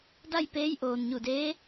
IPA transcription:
da˥˨jpeː˧˥jʔoː˩n ɲu˧˩deː˧˥

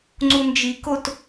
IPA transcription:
ŋ͡ǀund͡ʒikot

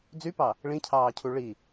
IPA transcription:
d͡zypɑ | ɭĩcʰɑːcʰu ɭi

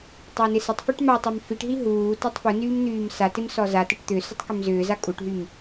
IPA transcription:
tˤanɪsɪtˤfyʈ matˤam fiʈɦi ɦuː tɔtˤfunyːm n̪yːmsatɪm sɔzatɪʈ t̪ʏ sʏtˤkʏmzʏːza kʼuʈɦym

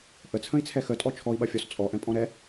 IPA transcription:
ʔət͡sʰə̃i̯t͡sʰɛ xətʼɔ t͡ʃʰɔi̯ɓɐfʲɔs t͡sʼɔʔɛ̃pʼɔ̃ ɾɛ

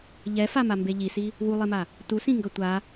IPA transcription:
ʎɛfamambe ʎisi | wulˠema | tusĩŋɡʌ tʷa

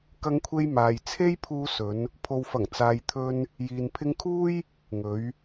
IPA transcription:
kɐ˧ŋkʷʰe˧j maː˨j t͡sʰe˥j pʰuː˧ sɵ˨˧n | pʰo˨wfɐ˨˩ŋt͡saː˨j t̪ʰɵ˧n | jiː˨n pʰɪ˧ŋkʰuː˥j | ŋɵ˨˧ɥ

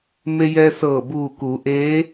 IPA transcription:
me˧jɛː˧ sɤː˧˩buː˧˩kuː˩˧ ʔeː˧˥

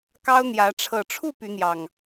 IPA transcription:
kɑ˦ʊ̯ n̪jä˨˦ ʈ͡ʂʰɤ˨˩ʈ͡ʂʰu˥˨ py˨˦n̪jɑ˨˩ŋ

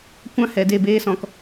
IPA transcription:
kʷã˦ hɛ˨de˦˨beː˦sɔ̃˧k

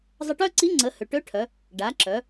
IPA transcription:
zˤə˧ʈœ˥ǀi˧˥ ŋ͡ǀə˩˧hø˩ʈø˧˥ʈʰœ˩˧ | ɖa˩˧ǁœ˩˧

